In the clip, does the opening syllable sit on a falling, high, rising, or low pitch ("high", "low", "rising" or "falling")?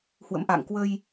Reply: rising